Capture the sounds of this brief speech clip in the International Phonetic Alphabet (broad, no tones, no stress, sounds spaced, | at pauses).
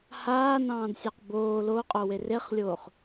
h aː n ɑ̃ː d sʲ ɑ q b oː l o qʼ o w e r e χ lʲ oː χ